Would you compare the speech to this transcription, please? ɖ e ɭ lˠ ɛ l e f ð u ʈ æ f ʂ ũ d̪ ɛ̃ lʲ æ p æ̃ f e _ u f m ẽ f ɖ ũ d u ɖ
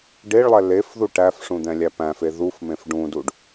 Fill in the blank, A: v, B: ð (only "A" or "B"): B